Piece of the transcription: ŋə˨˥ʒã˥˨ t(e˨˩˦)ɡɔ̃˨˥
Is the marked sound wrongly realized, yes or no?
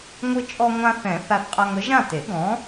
no